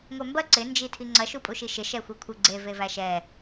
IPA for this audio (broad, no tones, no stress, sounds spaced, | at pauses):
ŋʷ ɛ m b ɐ ǀ ɪ n d͡ʒ i tʰ i ŋ͡ǀ ɐ ʃ u pʼ u ʃ i ʃ ɪ ʃ ɛ xʷ ɐ kʷʰ ɪ ɡ͡ǀ e v e v æ ʃ ɛ